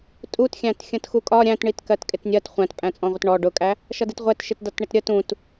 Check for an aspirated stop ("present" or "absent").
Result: absent